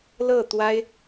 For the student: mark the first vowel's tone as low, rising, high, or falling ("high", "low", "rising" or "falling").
falling